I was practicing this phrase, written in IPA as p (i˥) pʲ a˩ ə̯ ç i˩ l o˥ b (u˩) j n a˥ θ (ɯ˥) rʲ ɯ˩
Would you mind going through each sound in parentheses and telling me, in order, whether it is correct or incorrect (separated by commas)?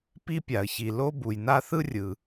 correct, correct, correct